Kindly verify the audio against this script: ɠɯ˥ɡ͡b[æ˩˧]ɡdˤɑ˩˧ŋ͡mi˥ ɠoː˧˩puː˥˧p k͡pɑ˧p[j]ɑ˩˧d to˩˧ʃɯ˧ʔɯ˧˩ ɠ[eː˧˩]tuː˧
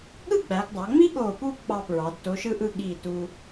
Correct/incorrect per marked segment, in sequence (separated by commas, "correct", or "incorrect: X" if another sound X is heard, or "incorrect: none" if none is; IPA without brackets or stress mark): correct, incorrect: ɹ, incorrect: iː˧˩